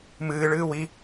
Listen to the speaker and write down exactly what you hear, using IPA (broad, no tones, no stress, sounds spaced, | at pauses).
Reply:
m ɨː ɭ ɨː w i